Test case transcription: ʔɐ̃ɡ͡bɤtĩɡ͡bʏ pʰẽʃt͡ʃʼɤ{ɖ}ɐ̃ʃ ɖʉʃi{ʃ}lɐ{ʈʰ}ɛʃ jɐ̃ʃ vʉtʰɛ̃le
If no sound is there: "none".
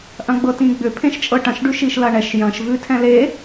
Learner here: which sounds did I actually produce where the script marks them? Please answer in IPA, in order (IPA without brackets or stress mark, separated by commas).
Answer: ʈ, ʃ, ɳ